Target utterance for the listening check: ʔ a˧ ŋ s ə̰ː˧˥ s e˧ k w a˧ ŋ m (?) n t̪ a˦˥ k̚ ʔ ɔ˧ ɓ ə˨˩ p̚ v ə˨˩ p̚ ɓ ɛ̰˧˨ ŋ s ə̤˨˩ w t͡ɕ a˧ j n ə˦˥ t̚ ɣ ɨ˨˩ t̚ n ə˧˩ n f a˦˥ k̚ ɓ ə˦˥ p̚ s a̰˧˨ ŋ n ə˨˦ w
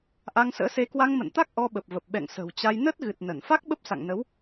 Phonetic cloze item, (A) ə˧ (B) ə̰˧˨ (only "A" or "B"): B